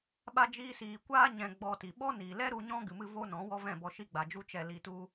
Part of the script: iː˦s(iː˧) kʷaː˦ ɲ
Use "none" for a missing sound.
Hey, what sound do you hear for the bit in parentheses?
iː˧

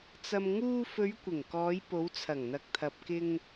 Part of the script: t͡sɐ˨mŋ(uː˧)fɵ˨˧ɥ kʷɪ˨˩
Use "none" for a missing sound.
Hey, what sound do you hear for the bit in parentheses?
uː˧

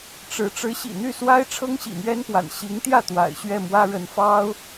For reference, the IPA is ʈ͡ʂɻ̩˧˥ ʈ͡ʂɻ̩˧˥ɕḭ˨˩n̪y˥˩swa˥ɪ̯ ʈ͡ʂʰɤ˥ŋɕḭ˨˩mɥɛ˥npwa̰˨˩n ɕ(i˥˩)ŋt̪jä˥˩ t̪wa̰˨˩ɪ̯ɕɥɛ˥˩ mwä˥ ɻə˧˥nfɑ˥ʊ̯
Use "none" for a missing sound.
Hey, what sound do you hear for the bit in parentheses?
i˧˥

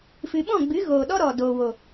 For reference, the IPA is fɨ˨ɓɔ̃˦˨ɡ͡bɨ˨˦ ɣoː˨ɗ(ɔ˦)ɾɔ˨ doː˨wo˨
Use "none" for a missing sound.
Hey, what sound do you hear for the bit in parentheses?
ɔ˦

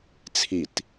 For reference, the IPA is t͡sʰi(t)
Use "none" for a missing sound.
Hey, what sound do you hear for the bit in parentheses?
t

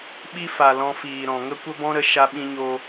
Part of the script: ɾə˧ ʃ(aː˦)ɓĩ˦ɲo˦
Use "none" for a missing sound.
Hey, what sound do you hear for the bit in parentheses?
a˦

